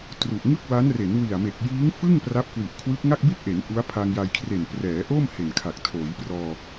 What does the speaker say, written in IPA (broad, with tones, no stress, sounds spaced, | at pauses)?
t r u˨˩ ʔ ŋ ɯ˥˩ k̚ w a˦˥ n r e˩˦ n w i˨˩ a̯ m e˨˩ k̚ j iː˦˥ ŋ f ɯ˥˩ ŋ p r a˦˥ p̚ k w i˨˩ ʔ kʰ w ɯ˦˥ k̚ ŋ a˥˩ k̚ b i˥˩ t̚ ʔ e˩˦ n ʔ u˦˥ a̯ pʰ a˧ ŋ j a˧ j kʰ r e˨˩ n p r ɛː˩˦ ʔ oː˥˩ m h e˨˩ n kʰ a˨˩ k̚ tʰ oː˩˦ j p r ɔː˧